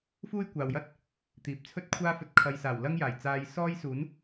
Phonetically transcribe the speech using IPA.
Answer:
f uː˥ j kʷ aː˨ w j ɐ˥ t̚ | t̪ iː˨ p̚ t͡sʰ ɵ˥ t̚ kʷʰ aː˥ f ɵ˧ t̚ kʰ ɐ˨ j s aː˨˩ w l ɐ˥ ŋ j aː˨˩ j t͡s aː˧ j s ɔː˥ j s uː˨˥ n

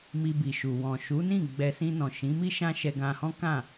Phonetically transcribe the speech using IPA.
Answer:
m i˧ b i˨ ʃ u˨ w ɔ̃˨ ʃ u˨˦ n ĩ˦˨ ɡ͡b ɛ˧ s ĩ˧ n ɔ̃˨ ʃ ĩ˨˦ m i˦ ʃ ã˦ ʃ ɛ˧ ɡ ã˧ h ɔ̃˦ k ã˦˨

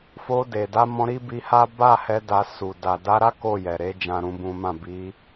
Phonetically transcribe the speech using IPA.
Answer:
f o˧ d e˨ d a˧ m ɔ̃˧ ɾ i˦ b i˧ h a˦ b a˦˨ h ɛ˧ d a˧ s u˨ d a˨ d a˨˦ ɾ a˦ k o˦˨ j ɛ˨ ɾ e˧ d͡ʒ ã˦ ɾ ũ˦ b ũ˦ m ã˦˨ b i˧

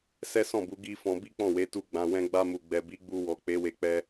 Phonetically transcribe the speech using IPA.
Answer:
s ɛ˦ s ɔ̃˦˨ b u˨˦ ɡ i˦ f ɔ̃˧ b i˦ k͡p ɔ̃˦˨ w e˨˦ t u˧ ɡ͡b ã˨ w ɛ̃˧ ɡ͡b a˧ m u˨ ɡ͡b ɛ˨ b i˨˦ ɡ͡b u˧ w ɔ˨ k͡p e˨˦ w e˧ k͡p ɛ˧

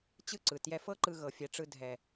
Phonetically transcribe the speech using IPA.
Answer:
t͡ɕ ɯ˦ ǀ ɯ˨ t j ɛ˧ f ɤ˦ ǃ ɯ˧ ɣ ɤ˨ fʲ ɛ˨ ʈ͡ʂ ɯ˧ dʱ ɛ˨

